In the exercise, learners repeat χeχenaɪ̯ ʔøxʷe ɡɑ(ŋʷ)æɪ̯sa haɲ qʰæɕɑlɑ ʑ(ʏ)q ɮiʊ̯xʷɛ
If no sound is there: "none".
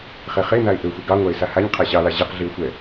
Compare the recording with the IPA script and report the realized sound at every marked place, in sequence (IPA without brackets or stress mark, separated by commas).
ŋʷ, ɛ